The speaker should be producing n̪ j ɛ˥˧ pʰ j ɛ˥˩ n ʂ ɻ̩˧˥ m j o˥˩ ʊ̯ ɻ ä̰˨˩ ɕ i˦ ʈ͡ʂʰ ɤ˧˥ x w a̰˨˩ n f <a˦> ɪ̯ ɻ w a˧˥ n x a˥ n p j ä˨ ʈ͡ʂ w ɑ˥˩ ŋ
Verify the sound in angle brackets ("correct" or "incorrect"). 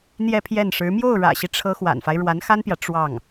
correct